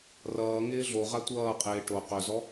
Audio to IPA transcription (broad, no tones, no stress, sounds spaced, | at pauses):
r ʌː ŋ ɪː ɮ o ʁ a tʷ ʌː qʼ ɪː ʈ o q ɵ z ɔ